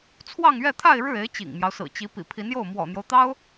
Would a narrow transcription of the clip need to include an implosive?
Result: no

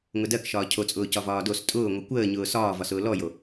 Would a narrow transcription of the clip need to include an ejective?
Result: yes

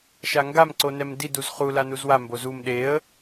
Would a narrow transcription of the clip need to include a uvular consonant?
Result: yes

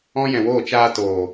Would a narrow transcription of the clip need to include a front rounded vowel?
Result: no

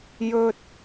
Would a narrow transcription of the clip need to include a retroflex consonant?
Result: no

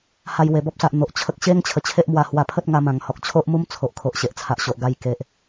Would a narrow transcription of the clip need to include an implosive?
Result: no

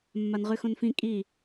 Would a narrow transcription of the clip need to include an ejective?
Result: yes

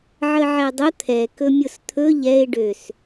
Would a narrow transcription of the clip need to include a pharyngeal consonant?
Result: yes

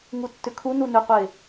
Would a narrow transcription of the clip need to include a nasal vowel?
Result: no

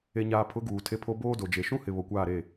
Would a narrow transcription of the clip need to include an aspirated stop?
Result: yes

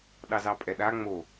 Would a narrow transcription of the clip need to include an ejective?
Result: yes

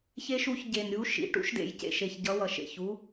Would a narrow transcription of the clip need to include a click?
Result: no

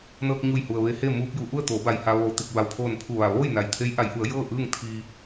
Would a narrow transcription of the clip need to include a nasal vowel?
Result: no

